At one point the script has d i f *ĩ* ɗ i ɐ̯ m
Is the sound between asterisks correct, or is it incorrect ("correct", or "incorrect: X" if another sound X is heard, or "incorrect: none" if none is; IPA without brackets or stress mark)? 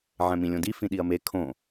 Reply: correct